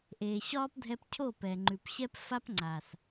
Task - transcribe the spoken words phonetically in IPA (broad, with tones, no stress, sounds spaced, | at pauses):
ʔ eː˨ ɕ ɒː˦ p dʱ ɛ˧ p cʰ oː˦˨ p ɛ˨ ŋ͡ǃ ʉ˨ p ɕ ɛ˦ p f a˦ p ŋ͡ǀ aː˨ s